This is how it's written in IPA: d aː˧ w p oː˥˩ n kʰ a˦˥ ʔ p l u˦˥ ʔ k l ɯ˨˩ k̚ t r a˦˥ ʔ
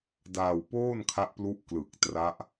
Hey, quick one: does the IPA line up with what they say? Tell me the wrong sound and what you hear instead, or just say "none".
none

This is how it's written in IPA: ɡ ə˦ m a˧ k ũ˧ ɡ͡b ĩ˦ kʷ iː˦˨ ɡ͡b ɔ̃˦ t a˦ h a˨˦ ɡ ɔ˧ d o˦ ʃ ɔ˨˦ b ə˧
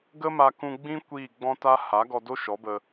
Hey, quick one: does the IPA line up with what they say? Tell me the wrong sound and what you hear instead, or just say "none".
none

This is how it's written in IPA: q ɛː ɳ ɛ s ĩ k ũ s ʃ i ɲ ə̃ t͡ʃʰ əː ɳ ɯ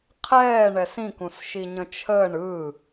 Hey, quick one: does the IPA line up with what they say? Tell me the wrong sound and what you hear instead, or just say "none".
q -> qʰ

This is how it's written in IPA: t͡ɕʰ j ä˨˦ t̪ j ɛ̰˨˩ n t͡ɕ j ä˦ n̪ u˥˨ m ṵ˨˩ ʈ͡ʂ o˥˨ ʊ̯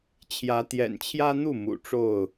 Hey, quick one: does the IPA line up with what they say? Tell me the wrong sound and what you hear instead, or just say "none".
t͡ɕ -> t͡ɕʰ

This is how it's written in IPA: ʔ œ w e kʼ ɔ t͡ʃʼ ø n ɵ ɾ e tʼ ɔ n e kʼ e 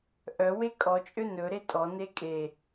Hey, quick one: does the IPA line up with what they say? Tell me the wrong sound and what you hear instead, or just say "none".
none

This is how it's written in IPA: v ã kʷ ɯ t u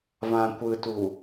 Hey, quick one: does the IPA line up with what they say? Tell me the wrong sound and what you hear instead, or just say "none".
none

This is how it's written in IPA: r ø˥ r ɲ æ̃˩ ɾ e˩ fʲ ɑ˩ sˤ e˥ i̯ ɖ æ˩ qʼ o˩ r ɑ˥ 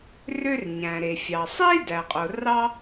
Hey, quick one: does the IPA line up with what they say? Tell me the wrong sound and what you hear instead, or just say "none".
ɖ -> d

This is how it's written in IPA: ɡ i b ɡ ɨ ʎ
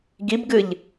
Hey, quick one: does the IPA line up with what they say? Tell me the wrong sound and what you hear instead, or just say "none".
none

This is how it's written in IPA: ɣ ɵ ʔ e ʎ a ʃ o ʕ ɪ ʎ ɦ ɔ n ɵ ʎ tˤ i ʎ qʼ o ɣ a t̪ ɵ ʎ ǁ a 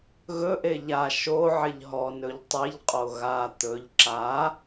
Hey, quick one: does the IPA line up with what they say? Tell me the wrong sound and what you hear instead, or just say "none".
none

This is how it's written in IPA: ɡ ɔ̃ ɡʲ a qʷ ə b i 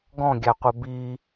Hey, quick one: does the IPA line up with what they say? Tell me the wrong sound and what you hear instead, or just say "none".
none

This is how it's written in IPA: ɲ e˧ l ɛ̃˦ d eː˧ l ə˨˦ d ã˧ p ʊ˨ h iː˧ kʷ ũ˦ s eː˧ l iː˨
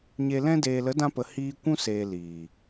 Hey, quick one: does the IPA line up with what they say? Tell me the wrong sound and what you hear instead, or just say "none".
ʊ˨ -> ə˨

